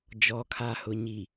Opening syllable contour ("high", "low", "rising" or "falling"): low